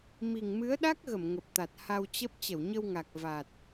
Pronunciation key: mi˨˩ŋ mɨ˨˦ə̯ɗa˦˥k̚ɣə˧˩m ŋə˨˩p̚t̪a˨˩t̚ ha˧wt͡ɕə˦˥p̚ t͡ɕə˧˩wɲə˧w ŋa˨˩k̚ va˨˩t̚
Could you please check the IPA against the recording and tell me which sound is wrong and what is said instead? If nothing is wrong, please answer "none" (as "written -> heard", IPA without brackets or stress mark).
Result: none